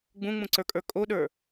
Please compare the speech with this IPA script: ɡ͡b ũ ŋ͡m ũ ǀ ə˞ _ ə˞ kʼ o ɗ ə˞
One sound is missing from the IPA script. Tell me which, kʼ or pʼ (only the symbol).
kʼ